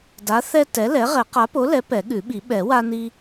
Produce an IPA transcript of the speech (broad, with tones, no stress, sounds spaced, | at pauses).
d a˨˥ θ ɛ˦ t ɛ˨˥ l ɛ˨˥ ʁ ɛ˨˩˦ q a˨˥ p o˨˥ l ɛ˨˥ p ɛ˨˩˦ ɠ ʉ˨˩˦ ɓ i˨˩˦ ɓ ɛ˨˩˦ w a˦ n i˦